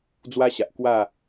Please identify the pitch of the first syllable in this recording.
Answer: high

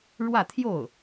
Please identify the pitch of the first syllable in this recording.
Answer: falling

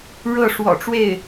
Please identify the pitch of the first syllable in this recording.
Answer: falling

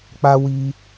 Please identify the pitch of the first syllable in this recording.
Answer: high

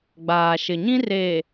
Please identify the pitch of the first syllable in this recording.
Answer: low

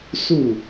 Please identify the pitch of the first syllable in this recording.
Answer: falling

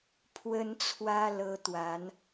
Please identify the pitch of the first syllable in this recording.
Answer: high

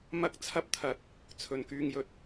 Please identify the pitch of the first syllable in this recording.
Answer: high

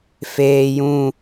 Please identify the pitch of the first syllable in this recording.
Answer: low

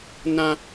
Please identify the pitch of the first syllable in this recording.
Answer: high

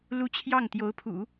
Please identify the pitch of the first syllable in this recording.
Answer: high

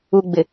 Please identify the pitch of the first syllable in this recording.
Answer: low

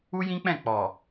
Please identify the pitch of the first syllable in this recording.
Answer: high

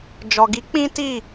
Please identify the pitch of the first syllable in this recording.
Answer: low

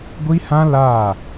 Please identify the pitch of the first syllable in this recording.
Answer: high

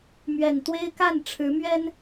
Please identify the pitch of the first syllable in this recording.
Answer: low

